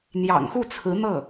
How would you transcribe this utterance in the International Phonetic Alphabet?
n̪jɑ̰˨˩ŋxu˥˩t͡sʰɹ̩˧˥n̪ɤ˥˩

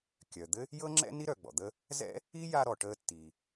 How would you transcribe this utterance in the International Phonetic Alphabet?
kʲœ˩d̪ɘ˥ | jɤ˥ŋ͡ǁɛ̰˥ ni˥ɾœ˩ɡ͡bɔ̰˩d̪ə˦ | zɛ̰˥ | i˥ ja˦ɾɔ˩ ʈəː˦tːiː˩

